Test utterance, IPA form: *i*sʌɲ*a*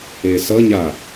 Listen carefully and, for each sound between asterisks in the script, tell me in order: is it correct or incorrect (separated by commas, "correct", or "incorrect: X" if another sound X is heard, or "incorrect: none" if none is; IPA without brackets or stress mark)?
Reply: incorrect: e, correct